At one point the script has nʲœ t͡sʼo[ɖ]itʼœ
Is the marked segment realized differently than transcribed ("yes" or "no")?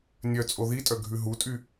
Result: yes